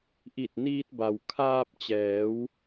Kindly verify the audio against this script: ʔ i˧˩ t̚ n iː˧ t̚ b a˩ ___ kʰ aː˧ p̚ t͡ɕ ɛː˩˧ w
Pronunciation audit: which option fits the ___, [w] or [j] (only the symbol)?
w